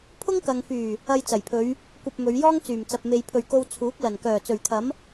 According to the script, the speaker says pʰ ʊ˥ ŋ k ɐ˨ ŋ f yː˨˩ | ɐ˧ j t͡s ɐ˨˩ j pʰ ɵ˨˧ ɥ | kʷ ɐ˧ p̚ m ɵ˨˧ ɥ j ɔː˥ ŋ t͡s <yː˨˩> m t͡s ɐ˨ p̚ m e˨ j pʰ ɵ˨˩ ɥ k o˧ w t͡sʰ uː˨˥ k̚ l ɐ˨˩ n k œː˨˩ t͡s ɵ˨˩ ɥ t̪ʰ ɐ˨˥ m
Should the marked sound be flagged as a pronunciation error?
no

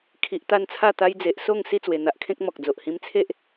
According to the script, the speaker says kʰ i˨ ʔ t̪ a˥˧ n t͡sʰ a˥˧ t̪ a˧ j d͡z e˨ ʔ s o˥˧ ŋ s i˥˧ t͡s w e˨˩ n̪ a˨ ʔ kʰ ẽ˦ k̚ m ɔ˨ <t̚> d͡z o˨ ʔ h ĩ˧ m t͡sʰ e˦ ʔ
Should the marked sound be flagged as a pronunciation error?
yes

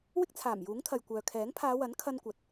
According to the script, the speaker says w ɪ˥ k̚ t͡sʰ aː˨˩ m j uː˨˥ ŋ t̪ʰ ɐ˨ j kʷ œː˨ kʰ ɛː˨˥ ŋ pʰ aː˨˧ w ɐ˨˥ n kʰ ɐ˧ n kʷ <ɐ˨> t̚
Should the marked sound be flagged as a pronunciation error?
no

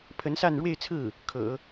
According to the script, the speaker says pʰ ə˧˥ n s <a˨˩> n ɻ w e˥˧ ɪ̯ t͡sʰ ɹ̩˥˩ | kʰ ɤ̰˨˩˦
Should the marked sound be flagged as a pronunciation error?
yes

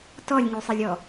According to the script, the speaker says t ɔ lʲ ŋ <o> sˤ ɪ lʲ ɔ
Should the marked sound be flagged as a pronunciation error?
yes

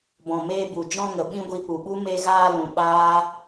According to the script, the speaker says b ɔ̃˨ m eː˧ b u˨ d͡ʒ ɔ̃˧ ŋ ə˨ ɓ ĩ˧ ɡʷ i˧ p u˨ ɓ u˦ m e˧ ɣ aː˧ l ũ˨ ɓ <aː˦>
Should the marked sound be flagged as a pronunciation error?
no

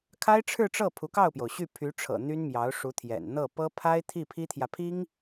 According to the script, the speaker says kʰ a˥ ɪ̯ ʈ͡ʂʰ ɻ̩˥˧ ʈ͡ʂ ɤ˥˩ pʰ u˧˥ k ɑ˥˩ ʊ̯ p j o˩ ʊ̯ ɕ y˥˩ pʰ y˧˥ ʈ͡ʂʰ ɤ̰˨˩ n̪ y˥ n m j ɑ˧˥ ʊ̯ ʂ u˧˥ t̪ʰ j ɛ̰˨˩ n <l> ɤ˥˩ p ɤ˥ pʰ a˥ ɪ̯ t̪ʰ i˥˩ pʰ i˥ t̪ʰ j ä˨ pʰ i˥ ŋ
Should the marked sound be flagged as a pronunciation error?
yes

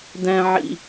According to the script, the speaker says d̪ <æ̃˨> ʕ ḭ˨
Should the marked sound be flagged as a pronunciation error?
no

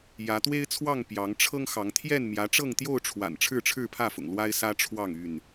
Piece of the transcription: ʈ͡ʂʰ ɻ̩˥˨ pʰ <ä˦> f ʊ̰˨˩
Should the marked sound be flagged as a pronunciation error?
yes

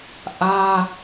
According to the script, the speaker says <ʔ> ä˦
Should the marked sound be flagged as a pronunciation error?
no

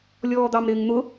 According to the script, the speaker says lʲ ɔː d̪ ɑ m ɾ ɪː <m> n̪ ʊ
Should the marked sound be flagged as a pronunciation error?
yes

